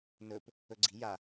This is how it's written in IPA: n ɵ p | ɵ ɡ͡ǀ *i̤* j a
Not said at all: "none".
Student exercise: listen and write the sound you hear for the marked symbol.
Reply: i̤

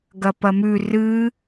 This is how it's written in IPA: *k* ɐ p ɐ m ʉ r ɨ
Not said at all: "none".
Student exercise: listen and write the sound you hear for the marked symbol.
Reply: ɡ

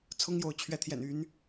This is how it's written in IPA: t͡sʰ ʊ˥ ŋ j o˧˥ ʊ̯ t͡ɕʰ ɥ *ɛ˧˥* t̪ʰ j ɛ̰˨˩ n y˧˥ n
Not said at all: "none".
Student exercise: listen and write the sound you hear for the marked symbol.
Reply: ɛ˧˥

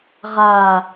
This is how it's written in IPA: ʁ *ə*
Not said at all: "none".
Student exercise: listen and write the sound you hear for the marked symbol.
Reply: a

